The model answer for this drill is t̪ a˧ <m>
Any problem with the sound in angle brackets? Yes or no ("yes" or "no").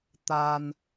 yes